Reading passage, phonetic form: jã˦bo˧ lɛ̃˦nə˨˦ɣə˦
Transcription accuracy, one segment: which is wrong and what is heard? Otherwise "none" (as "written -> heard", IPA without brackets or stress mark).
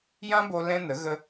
none